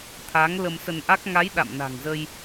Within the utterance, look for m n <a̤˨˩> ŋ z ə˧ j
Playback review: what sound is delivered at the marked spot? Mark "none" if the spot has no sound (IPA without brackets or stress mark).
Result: a̤˨˩